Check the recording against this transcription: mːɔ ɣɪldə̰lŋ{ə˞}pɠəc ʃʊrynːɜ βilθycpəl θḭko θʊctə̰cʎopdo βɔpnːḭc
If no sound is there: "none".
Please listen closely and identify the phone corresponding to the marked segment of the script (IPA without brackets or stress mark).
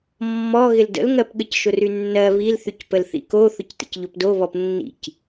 ɜ